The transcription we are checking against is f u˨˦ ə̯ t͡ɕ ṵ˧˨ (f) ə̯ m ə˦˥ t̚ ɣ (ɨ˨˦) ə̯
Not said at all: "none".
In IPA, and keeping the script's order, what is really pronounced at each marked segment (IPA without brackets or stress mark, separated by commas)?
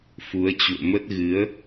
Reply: none, ɨ˨˦